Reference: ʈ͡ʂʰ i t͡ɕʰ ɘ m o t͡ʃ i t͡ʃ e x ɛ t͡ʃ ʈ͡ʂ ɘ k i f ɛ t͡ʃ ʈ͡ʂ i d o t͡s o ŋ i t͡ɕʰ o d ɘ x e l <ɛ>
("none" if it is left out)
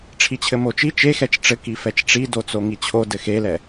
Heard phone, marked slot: ɛ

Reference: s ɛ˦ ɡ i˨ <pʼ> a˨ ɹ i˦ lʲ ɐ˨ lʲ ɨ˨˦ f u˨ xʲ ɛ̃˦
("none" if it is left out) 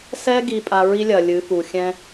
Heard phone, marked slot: pʼ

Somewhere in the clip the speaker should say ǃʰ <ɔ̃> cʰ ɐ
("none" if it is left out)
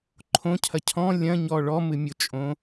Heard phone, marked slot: õ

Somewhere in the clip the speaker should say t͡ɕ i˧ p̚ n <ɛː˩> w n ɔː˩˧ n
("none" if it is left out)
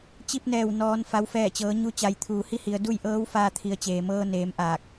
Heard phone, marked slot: ɛː˧˩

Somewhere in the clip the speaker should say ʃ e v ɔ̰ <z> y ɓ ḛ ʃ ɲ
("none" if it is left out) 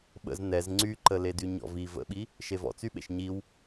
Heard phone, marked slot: t͡s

